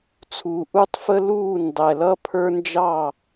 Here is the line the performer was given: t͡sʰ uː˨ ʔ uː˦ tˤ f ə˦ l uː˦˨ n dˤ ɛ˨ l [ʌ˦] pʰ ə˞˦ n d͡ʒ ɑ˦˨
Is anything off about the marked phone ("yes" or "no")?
no